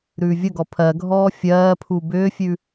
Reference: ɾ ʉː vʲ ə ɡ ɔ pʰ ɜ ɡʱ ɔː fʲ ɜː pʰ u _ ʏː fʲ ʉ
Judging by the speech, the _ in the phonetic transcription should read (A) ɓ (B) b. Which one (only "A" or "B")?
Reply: B